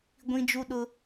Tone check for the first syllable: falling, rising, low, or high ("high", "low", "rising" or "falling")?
high